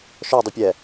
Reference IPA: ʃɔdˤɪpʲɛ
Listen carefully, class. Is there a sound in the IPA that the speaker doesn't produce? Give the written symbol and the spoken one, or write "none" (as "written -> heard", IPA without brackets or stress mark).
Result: none